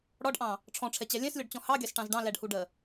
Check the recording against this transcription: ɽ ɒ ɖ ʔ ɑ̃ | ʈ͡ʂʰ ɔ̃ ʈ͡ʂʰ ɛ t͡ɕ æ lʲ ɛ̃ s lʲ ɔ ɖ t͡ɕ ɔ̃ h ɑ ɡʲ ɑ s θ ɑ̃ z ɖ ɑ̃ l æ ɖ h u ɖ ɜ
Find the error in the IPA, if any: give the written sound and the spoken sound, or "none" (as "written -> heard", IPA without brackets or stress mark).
θ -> ʈ